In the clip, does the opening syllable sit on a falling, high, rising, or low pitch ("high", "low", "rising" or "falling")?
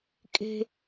high